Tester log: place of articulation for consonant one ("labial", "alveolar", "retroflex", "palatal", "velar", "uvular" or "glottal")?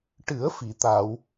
retroflex